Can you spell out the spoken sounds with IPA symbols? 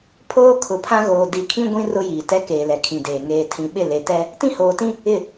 pʰ oː˦ kʰ ʊ˨ pʰ ã˦ ɣ oː˨ d i˨ kʰ ĩ˦ ɡʷ ĩ˦ r ʊ˦ j iː˨ t ɛ˦ k eː˨ l ɛ˨ kʰ ĩ˨ d eː˨ ŋ eː˨ tʰ ĩ˨ ɓ ɪ˦˨ l e˨ t ɛ˦ | t ĩ˦ h oː˨ t ĩ˦ | ɪ˦˨

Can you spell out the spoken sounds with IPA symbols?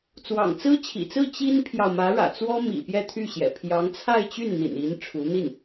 t͡s w ɑ̰˨˩ ŋ t͡s ɹ̩˥ t͡ɕʰ ḭ˨˩ t͡s ɹ̩˥˩ t͡ɕ i˥ n pʰ j ɑ˨ ʊ̯ m ä˧˥ ɻ ä̰˨˩ t͡s w ɔ˥ m ḭ˨˩ p j ɛ˥˧ t̪ʰ y˥˩ ɕ j ɛ̰˨˩ pʰ j ɑ˧˥ ŋ t͡sʰ a˥˧ ɪ̯ t͡ɕ y˥˩ n n̪ ḭ˨˩ n i˧˥ n ʈ͡ʂʰ u˧˥ n̪ i˥˩ n

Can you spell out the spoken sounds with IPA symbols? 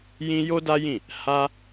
j ĩ˦ j o˦ d a˦ j ĩ˦˨ | h a˦

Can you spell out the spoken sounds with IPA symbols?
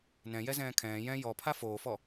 n ɛ̃ j ɛ z ɛ̃ː kʰ ɛ̃ː j ɛ̃ j ɔ pʰ a f oː f ɔ

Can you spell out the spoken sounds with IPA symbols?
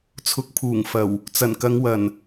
t͡sʰ ʊ˨˥ k̚ pʰ uː˨˩ ŋ f ɐ˨˩ w | t͡s ɐ˨˩ n k ɐ˨˧ ŋ w ɐ˨˩ n

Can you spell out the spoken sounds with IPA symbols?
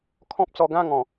kʰ ɔ̃˦ p̚ t͡s ɔ˧ ɡ ã˥˧ ŋ ɔ̃˨˩

